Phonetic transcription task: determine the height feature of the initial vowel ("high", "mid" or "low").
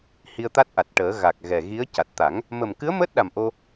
high